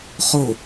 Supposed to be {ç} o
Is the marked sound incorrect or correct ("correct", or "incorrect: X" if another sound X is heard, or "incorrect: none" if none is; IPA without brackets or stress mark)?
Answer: incorrect: χ